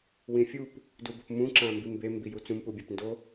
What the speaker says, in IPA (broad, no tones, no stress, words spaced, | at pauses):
wĩfʲup | dubopmũ ǁãmbimbe mbijut͡sũm pubʲapndo